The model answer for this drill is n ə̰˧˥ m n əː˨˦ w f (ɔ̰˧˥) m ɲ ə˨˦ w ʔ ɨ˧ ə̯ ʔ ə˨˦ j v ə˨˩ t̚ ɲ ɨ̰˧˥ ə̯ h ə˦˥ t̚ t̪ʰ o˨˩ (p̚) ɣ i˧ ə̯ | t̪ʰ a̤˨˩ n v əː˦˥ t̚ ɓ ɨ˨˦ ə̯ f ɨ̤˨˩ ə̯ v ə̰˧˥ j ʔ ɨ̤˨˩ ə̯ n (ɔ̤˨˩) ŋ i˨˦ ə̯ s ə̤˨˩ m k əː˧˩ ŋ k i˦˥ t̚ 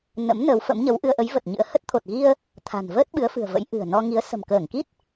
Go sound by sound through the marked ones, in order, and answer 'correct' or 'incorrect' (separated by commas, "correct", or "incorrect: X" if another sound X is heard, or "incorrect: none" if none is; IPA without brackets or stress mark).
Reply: incorrect: ə̰˧˥, incorrect: t̚, incorrect: ɔ˧